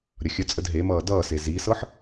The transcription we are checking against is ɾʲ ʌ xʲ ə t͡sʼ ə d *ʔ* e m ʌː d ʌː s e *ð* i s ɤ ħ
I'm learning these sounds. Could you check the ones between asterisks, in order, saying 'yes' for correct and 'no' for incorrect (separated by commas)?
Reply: no, no